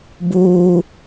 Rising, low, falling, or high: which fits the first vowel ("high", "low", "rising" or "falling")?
high